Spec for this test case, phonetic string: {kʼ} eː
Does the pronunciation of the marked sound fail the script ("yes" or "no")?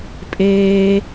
yes